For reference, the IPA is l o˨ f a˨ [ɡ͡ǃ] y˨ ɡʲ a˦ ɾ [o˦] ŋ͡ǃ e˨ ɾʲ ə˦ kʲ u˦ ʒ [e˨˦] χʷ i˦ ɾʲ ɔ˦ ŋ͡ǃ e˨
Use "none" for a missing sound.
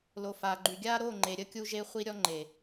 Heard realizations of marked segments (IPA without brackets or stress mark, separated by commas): ɡ͡ǃ, o˦˨, e˦